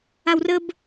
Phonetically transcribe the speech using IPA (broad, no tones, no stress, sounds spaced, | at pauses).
a w r ə b